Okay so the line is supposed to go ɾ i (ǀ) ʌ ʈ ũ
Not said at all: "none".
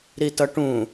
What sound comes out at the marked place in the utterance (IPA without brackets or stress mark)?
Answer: t